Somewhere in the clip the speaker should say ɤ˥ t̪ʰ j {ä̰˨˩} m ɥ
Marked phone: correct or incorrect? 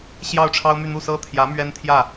incorrect: ä˧˥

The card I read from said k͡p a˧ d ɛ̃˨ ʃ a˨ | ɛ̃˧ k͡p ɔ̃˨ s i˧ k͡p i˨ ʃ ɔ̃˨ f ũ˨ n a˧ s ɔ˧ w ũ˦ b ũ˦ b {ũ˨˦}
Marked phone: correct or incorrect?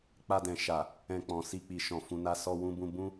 incorrect: ũ˦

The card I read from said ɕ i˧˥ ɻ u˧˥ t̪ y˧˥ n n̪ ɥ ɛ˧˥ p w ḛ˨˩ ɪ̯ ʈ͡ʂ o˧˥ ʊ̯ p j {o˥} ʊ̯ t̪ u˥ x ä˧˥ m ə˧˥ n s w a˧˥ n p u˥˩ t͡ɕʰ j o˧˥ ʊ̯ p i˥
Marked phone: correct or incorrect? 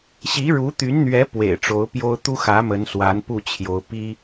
correct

